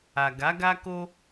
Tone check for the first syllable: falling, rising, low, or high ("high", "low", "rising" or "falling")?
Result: low